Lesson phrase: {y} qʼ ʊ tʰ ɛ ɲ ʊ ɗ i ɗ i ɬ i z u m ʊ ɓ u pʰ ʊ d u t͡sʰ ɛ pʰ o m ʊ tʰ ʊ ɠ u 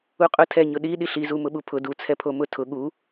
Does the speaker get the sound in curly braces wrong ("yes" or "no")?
yes